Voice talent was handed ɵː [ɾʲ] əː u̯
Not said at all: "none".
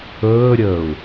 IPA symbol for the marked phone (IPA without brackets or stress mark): ɾʲ